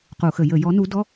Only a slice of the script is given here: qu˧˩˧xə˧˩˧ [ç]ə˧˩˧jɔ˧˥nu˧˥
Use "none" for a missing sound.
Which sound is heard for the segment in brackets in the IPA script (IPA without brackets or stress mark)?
j